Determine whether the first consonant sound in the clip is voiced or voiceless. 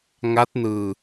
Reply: voiced